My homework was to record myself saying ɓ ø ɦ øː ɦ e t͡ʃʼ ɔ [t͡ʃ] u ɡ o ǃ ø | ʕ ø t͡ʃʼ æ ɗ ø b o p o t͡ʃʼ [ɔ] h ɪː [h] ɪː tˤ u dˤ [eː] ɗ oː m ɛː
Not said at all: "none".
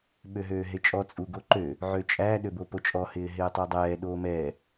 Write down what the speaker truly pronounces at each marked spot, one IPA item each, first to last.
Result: t͡sʼ, ɔ, ɦ, ɛː

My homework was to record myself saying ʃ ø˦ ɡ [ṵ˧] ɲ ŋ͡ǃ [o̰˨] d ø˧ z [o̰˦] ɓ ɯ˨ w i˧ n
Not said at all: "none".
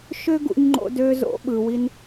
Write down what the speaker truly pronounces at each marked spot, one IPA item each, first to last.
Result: ṵ˧, o̰˧, o̰˨˦

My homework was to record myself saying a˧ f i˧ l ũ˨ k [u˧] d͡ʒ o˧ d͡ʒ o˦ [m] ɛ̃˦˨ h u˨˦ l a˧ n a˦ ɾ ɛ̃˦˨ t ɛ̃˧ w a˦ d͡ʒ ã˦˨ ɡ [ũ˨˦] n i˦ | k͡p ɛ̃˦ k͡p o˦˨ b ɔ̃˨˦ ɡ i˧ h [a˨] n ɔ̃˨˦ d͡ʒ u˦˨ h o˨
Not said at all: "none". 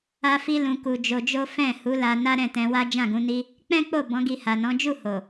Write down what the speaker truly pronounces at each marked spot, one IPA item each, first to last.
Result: u˨, f, ũ˨˦, a˨

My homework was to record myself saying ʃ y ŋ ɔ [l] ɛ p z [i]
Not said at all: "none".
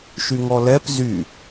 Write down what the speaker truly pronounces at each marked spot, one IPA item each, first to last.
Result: l, y

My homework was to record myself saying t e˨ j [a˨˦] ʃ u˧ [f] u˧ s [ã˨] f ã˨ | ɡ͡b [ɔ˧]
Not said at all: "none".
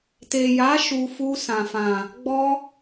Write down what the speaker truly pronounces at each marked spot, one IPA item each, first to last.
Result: a˨˦, f, ã˨, ɔ˧

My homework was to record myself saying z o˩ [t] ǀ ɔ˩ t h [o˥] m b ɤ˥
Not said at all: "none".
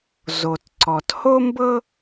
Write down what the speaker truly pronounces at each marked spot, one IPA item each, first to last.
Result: t, o˥

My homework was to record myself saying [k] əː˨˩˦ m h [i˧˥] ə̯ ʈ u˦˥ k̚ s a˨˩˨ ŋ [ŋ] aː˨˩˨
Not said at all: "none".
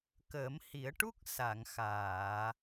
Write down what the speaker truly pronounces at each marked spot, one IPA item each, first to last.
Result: k, i˨˩˦, x

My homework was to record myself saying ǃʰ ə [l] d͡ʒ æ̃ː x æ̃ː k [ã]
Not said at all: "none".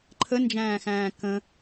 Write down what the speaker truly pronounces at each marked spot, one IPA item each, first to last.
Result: n, ə̃

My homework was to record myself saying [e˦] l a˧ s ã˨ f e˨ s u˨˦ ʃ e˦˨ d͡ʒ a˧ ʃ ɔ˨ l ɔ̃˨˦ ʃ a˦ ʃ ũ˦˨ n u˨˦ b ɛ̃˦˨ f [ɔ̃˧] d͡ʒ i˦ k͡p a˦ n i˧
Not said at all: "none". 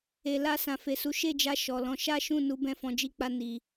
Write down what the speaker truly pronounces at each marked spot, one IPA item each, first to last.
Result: e˨, ɔ̃˧

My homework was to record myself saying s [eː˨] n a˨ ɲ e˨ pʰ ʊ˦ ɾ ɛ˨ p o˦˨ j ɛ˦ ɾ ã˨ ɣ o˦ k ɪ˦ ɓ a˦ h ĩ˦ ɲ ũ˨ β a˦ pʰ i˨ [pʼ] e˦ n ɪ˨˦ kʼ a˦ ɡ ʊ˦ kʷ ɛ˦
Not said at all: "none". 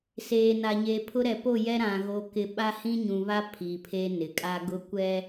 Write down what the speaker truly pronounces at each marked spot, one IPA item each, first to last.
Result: eː˨, pʰ

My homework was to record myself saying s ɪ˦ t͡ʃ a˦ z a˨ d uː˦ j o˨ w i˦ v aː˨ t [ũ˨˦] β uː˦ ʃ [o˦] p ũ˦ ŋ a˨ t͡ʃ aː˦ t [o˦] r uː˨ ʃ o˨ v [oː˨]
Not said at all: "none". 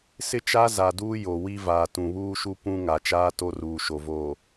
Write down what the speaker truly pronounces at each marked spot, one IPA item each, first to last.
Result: ũ˨, u˦, o˦, oː˨

